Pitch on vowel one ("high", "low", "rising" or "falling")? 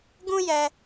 high